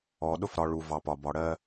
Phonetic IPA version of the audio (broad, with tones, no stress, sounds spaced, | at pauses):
ɔ˨ ɗ ʊ˦ f ɾ ɒ˨ ɭ u˨ v ɑ˨ p ɒ˨ b ɒ˨ ɽ ɜ˦